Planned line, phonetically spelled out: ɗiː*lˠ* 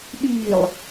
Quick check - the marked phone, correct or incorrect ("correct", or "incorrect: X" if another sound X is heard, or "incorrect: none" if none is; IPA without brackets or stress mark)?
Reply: correct